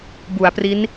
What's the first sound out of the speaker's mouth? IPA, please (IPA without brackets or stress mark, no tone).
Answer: b